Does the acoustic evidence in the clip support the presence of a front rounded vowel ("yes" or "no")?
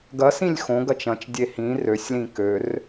yes